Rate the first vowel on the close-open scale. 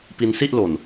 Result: close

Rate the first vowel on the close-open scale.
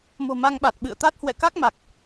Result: mid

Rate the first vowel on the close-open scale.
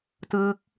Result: close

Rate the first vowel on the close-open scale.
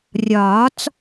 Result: open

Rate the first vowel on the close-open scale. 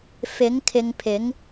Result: close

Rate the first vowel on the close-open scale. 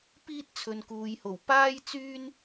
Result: close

